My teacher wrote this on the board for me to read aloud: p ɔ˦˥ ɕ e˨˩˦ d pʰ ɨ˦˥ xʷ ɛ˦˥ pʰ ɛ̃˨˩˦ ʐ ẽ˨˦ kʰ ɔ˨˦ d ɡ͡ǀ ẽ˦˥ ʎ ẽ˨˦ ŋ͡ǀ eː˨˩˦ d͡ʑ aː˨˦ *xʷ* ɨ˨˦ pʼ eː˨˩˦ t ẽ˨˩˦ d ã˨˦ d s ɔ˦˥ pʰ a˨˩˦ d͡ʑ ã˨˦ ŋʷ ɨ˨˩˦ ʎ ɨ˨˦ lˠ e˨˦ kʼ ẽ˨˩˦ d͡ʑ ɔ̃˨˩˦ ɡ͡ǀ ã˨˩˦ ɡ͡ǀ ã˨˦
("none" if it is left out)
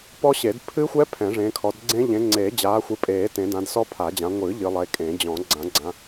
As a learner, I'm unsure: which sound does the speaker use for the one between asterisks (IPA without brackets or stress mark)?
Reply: xʷ